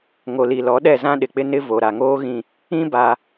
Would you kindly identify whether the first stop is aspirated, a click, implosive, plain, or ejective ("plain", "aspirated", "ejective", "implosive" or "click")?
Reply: implosive